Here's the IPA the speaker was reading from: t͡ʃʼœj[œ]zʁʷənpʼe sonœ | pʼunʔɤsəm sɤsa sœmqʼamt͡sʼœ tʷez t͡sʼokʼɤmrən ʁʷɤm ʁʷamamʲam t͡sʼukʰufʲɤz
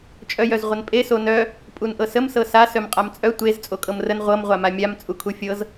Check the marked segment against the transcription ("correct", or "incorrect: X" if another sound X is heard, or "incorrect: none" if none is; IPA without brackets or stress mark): correct